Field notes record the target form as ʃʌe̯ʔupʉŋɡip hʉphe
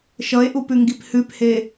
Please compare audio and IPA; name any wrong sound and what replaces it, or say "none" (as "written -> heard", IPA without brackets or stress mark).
none